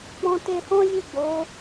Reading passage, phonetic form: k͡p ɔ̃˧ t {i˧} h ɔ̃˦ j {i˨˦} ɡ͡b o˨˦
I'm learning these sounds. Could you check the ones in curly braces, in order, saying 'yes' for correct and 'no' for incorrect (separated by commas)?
no, no